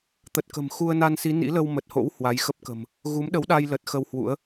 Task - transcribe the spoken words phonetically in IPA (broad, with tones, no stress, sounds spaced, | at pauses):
t̪ ə˨˩ t̚ k ə̤˨˩ m x u˧ ə̯ n a˧ n s i˨˦ n ḭ˧˥ l ə˧ w m ə˨˩ t̚ h o̰˧˥ w h w a˨˦ j x ə˦˥ p̚ k ə̤˨˩ m | ɣ u˨˦ m ɗ ə˨˦ w ɗ a˧ j l ə˨˩ t̚ x ə˧ w h w ṵ˧˥ ə̯